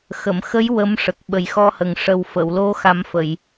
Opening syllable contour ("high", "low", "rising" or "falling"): low